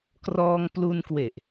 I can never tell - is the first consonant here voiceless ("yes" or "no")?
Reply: yes